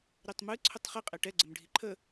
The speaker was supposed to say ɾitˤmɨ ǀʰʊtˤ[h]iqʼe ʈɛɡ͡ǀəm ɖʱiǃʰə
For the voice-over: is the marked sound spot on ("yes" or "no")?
no